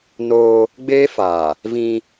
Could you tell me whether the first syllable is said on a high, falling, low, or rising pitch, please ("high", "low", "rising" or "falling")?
high